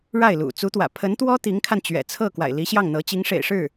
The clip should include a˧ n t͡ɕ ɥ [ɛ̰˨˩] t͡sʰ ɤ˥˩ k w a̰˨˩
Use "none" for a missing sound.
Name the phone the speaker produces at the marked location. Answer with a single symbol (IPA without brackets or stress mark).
ɛ̰˨˩